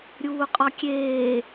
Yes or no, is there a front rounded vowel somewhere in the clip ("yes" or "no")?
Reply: no